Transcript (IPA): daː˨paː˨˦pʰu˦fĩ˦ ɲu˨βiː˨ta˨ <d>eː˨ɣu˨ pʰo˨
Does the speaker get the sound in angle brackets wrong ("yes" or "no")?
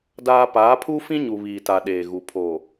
yes